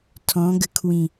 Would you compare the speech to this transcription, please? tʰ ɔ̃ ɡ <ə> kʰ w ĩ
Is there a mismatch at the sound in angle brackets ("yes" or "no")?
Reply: no